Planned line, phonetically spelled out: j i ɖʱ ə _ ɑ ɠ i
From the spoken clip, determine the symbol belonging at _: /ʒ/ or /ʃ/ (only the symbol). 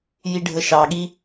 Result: ʃ